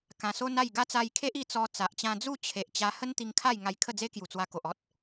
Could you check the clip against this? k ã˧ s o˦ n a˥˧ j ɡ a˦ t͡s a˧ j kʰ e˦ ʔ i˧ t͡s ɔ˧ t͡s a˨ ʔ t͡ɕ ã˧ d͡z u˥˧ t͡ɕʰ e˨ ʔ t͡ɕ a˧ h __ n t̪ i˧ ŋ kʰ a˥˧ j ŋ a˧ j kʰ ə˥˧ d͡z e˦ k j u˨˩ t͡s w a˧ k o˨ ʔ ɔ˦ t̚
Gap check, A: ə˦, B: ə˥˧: A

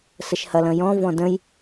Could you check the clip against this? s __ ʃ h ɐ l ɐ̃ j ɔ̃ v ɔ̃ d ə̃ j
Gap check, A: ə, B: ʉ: A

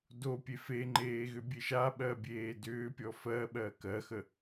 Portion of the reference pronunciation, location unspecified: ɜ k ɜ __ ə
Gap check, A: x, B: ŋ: A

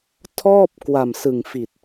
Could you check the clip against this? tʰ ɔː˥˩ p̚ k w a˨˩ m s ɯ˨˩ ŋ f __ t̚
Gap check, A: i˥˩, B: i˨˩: B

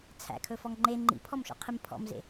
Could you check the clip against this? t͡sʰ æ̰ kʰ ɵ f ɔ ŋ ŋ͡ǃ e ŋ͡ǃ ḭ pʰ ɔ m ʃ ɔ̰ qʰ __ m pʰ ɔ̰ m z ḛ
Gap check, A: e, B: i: B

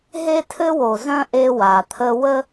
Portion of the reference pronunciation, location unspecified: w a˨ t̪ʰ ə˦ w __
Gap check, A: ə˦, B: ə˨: A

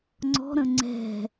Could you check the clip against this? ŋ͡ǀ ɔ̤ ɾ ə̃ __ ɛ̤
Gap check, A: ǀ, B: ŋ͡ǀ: B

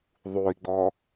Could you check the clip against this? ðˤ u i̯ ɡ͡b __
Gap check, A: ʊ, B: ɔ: B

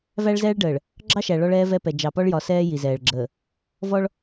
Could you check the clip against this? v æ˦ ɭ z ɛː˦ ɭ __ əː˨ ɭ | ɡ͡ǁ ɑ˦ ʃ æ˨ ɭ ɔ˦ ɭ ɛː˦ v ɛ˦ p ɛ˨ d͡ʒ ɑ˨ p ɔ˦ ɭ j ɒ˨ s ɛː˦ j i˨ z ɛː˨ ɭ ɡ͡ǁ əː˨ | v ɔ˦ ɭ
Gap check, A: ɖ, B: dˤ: A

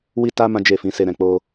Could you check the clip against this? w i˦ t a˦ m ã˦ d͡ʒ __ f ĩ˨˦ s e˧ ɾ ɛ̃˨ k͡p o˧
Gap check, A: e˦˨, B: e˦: A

